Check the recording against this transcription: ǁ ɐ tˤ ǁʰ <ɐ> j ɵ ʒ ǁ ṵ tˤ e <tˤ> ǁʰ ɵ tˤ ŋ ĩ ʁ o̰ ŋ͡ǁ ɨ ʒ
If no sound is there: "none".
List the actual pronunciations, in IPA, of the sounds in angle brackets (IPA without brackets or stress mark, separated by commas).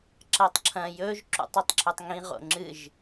ɐ̃, tˤ